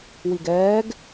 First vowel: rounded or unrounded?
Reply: unrounded